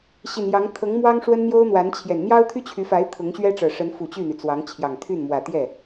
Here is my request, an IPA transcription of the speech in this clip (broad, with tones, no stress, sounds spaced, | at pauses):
ɕ i˨˩ n j ɑ˧˥ ŋ t̪ʰ ɤ˧˥ ŋ m w ɑ˥ ŋ ʂ w ə˥ n n̪ j o˥ ʊ̯ n̪ w a˧˥ n t͡ɕʰ j ɛ˨˩ n n̪ j ɑ˥ ʊ̯ t̪ʰ y˥ t͡ɕʰ y˧˥ f a˧˥ ɪ̯ t̪ʰ ʊ˧˥ ŋ ɕ ɥ ɛ˥ ʈ͡ʂ ɤ˨˩ ʂ ə˧˥ n f u˨˩ t͡ɕ y˥˩ n̪ y˩ t͡s w ɑ˧˥ ŋ t͡ɕʰ j ɑ˨˩ ŋ t̪ʰ y˥˩ n m w ä˨˩ t̪ j ɛ˥˩